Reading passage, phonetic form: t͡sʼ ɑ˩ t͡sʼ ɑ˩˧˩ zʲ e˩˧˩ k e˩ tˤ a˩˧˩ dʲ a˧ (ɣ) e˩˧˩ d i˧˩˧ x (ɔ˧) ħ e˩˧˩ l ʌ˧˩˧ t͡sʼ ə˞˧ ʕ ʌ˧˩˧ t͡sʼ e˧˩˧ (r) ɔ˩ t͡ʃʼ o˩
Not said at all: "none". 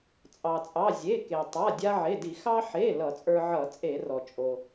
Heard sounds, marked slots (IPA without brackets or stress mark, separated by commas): ʕ, ɑ˧, r